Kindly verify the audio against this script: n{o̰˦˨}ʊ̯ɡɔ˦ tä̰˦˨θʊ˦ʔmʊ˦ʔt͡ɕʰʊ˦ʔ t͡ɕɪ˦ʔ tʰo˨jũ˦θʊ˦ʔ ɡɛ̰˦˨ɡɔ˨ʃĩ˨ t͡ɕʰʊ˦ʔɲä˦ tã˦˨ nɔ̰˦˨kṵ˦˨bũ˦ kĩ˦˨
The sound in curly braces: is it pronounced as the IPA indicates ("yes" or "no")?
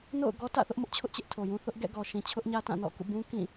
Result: yes